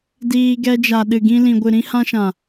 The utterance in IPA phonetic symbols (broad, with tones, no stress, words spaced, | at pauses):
diː˧ ɡɛ˧d͡ʒa˨ ɗɨ˨ɡĩ˧lĩ˨ ɡʷɨ˨ɾĩ˧hã˧ʃã˨